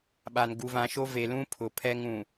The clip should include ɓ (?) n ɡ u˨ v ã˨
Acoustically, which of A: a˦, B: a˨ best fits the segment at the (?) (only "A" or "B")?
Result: B